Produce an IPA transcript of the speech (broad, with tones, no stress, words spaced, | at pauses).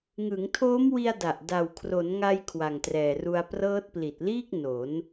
ŋɯ˩˦ŋtʰoː˦˥mwi˧a̯ da˨˩ʔ da˨˩wkʰro˩˦nŋa˧j kʰwa˨˩ŋtrɛː˨˩ru˧a̯ prɤː˦˥t̚pli˨˩t̚liː˥˩k̚ no˩˦n